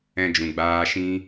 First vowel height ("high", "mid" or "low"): mid